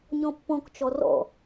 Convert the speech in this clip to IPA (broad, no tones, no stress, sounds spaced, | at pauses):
ɲ ɔ̃ pː ɔ̃ k t͡ʃ ɔ r ɔ̰